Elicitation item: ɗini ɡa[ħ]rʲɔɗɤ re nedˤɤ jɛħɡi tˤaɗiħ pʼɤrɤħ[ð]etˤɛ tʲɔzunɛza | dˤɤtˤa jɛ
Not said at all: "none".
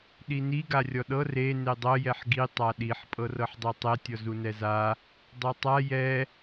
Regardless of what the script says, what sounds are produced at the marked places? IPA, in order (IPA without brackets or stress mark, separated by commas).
none, dˤ